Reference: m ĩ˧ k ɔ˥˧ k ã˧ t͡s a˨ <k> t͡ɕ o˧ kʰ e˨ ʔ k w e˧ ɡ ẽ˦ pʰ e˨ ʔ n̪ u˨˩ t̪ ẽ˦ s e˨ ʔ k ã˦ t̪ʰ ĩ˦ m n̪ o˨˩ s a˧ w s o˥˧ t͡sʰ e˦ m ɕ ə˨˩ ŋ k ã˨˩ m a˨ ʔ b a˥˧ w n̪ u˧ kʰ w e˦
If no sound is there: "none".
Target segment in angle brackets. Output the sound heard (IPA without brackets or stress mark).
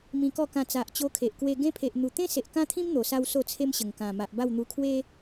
ʔ